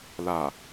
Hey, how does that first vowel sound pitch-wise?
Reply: low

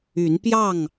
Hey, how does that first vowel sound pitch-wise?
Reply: rising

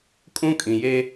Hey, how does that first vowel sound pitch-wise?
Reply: high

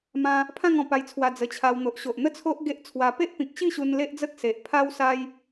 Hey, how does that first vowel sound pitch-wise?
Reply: high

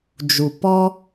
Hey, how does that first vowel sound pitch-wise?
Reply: low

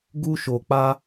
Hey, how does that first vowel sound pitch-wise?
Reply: high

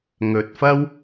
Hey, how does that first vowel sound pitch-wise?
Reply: low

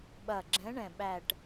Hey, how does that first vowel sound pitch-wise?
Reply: low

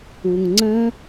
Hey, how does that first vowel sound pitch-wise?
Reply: low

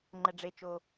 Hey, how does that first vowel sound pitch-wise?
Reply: low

